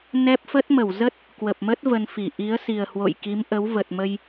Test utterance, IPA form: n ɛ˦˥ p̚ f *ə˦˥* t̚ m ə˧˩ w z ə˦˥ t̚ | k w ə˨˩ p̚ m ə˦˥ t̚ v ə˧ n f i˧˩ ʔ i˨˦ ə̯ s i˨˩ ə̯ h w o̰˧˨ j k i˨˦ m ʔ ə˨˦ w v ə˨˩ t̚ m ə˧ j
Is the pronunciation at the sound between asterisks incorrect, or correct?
correct